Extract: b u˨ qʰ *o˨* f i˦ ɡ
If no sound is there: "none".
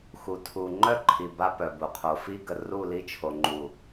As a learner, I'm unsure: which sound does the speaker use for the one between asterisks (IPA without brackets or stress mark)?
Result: o˨